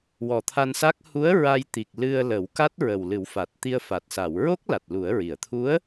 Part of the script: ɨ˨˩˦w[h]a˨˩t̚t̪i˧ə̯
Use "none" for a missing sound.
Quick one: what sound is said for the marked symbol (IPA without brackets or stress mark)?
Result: f